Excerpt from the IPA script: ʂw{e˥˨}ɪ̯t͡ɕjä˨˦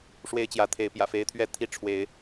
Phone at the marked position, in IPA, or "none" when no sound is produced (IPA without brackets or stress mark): e˦